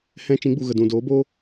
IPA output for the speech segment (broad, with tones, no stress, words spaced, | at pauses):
hɛ̃˦ t͡ʃĩ˨˦ɡ͡bu˨ ɣə˨dũ˨ doː˨˦boː˦